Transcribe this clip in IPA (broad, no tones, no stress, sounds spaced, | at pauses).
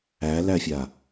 æ l æ fʲ a